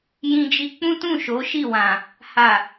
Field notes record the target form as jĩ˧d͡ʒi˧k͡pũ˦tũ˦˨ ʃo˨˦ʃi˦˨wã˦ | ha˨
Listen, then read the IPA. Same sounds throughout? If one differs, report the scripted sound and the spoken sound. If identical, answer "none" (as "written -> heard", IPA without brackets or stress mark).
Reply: ã˦ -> ã˨